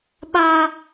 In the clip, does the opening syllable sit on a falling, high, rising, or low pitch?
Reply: high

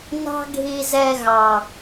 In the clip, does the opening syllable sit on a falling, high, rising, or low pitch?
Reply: high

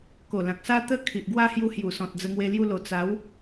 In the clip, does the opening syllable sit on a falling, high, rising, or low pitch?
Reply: low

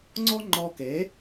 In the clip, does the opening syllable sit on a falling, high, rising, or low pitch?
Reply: high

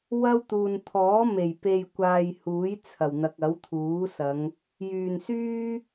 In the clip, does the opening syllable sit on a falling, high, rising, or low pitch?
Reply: high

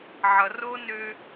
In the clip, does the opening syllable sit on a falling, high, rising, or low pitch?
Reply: low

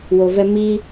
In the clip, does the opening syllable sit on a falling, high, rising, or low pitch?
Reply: low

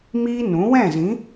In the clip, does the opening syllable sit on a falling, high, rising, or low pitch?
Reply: high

